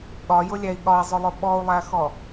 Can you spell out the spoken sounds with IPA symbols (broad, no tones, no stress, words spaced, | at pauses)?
ɠɒjʊlʲæi̯ ɠɒi̯zˤʊlˠʊ ɓɔu̯lˠæxɔ